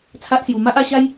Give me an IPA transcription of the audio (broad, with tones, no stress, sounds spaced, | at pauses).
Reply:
t͡sʰ a˦ ʔ s j u˨˩ m a˦ ʔ a˧ ɕ a˦ j